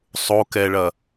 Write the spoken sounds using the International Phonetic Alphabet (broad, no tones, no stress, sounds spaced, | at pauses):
sˤ o k ɛ ɭ ɐ